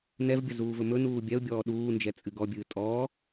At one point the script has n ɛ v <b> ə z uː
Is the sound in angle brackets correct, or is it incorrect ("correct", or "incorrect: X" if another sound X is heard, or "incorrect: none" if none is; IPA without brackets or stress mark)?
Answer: incorrect: bʲ